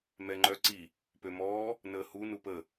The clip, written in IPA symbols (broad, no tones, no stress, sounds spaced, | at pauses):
m ɛ ŋ͡ǃ œ ǀ i | p ø m ɔː | n əː h u n u p ə